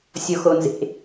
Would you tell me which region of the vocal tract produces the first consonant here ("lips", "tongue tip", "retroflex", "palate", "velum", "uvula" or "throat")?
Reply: tongue tip